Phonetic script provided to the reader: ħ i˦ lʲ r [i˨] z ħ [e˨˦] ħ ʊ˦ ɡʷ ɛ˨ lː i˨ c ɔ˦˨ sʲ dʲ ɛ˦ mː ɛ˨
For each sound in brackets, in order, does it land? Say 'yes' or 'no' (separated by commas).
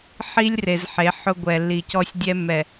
no, yes